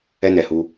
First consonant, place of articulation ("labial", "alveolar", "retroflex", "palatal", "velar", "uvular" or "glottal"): alveolar